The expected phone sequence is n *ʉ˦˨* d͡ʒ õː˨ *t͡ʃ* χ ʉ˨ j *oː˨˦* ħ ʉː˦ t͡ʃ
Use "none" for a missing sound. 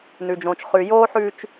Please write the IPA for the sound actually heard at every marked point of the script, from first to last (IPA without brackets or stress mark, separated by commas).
ʉ˨, t͡ʃ, oː˦